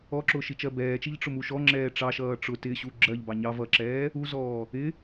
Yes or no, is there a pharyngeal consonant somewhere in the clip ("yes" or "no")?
no